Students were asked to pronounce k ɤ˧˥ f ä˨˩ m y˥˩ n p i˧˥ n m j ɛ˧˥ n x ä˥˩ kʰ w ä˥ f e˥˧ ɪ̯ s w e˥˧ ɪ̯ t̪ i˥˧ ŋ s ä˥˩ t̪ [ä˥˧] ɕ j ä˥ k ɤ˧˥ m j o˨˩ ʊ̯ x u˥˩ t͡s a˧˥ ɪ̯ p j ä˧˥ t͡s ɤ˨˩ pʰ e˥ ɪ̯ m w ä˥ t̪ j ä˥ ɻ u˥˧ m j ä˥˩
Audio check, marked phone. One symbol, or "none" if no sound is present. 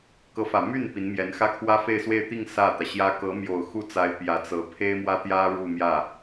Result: ä˩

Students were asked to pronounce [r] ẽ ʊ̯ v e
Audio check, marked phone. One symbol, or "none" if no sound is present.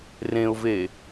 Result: r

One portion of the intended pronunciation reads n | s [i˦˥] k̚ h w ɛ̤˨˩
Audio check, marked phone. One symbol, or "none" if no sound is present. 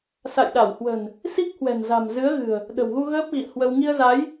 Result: i˦˥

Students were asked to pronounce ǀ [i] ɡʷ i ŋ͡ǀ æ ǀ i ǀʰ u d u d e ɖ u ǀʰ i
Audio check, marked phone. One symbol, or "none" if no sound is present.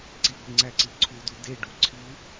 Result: i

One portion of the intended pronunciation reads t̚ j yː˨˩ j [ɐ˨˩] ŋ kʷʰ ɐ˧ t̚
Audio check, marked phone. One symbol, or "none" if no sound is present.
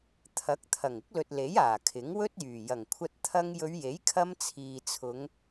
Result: ɐ˨˩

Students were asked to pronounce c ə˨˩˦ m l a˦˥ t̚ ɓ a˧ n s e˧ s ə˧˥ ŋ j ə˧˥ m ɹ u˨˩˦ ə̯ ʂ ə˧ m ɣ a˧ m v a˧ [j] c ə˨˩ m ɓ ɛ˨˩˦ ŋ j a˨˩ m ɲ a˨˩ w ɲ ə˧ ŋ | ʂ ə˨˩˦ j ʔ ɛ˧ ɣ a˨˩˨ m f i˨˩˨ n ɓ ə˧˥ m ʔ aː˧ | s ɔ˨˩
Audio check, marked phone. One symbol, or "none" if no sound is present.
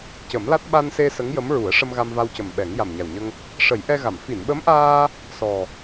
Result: w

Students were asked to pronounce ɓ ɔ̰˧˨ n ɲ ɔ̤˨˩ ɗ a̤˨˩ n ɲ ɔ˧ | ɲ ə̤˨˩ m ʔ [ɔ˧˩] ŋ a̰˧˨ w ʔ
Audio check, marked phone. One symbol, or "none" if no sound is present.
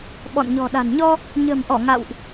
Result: ɔ˧˩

